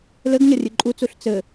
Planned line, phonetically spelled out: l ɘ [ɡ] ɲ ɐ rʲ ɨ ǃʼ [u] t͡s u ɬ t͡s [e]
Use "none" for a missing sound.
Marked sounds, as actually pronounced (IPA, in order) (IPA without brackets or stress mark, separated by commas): ɡ, u, ɘ